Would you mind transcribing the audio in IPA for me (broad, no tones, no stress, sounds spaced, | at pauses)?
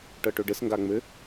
ʈ ɤ ʈ ɵ ɖ ɘ s ŋ ɡ a ŋ͡m ɘ